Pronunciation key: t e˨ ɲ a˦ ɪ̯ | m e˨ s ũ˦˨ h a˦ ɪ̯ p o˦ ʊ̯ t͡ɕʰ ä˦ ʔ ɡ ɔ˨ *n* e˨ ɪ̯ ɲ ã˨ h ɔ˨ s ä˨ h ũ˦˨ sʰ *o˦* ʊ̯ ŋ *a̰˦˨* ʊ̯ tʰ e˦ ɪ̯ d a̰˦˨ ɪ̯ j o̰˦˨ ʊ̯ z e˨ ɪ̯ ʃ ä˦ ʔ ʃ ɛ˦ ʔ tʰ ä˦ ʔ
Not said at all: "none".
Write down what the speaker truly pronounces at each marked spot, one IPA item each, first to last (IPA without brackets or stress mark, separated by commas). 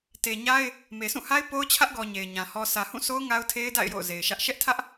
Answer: ɲ, o˦, a˦